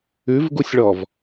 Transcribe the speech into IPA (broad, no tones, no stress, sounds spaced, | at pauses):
ʉ v ɡ u sʲ ɭ ɔ v